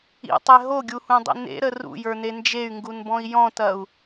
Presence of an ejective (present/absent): absent